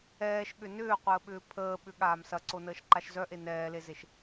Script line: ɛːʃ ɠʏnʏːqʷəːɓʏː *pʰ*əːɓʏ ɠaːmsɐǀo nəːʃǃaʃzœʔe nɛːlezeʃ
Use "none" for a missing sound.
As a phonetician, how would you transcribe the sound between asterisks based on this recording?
pʰ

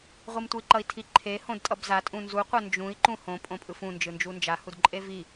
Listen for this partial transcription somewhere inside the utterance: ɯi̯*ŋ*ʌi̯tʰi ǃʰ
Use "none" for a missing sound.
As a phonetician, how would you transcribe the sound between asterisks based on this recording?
ǃ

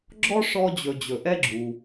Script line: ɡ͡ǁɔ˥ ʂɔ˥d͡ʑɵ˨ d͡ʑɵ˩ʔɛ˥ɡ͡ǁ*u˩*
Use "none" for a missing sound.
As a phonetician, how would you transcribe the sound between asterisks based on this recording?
u˩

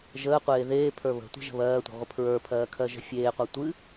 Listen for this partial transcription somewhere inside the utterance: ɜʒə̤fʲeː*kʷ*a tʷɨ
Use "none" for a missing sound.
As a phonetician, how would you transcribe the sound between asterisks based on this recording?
qʷ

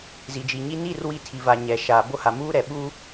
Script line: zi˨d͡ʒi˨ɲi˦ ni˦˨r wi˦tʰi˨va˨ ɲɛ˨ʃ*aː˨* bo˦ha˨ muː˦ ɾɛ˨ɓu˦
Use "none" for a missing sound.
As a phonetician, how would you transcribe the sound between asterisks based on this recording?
aː˨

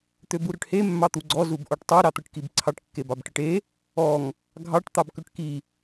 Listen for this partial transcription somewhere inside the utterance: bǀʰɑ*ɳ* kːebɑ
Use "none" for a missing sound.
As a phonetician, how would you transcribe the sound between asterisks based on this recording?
ʈ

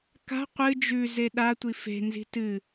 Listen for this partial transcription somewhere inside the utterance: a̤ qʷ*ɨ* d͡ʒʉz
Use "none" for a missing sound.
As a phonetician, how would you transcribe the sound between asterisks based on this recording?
ɨ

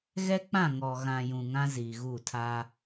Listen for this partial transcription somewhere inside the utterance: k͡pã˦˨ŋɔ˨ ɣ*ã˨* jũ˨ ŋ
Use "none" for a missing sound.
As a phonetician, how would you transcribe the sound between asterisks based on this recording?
ã˨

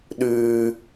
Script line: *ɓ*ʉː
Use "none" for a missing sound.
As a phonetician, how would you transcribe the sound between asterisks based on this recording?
ɗ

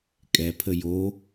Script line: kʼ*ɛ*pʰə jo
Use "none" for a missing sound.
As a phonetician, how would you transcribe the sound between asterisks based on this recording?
ɛ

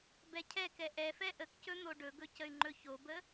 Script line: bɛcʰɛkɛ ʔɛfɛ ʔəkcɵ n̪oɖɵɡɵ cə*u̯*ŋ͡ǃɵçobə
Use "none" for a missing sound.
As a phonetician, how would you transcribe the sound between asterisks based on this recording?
y̯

